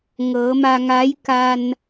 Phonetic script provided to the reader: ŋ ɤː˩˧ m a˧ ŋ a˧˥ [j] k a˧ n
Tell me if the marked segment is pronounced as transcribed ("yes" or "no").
yes